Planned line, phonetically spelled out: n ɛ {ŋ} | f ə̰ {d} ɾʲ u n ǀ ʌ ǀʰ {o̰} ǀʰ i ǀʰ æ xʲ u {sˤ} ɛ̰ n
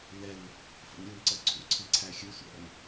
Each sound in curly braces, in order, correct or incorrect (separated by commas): incorrect, incorrect, incorrect, incorrect